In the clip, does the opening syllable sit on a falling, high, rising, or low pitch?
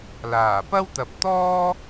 low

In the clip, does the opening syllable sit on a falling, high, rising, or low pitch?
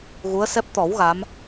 rising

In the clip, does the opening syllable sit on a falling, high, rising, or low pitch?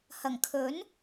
low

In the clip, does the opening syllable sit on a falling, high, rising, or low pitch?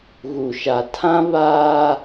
low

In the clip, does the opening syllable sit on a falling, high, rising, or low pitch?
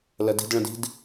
low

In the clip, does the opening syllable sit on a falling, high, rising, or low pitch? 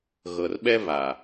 low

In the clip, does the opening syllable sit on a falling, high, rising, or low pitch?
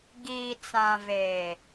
low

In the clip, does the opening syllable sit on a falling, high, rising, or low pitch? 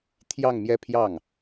falling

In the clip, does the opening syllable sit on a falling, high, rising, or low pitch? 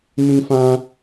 high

